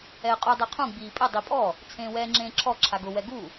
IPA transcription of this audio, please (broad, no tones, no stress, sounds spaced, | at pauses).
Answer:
ɛ ə̯ qʼ u dˤ ɛ qʰ ũ ɡ͡b iː pʼ ɪ dˤ i pʼ ɔ | t͡sʰ ẽː w ɛː ŋ͡ǁ ẽː ǁʰ ɔ ǁʰ a ɡ ʊ w ɛ ɡ u